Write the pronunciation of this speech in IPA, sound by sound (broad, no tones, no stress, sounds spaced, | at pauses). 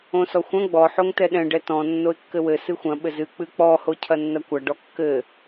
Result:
õ s ɔ xʷ ɐ̃ ɡ͡b ɔ ħ o ŋ t ɛ ɗ ɛ̃ ɖ ɛ t ɔ̃ nː o ɪ̯ kː ɘ w ɘ s ɨ xʷ ɐ̃ ɓ ɘ z ɨ k͡p ɨ k͡p ɔ h o cʰ ɐ nː ɐ kʷ ɐ ɖ ɔ kː ɘ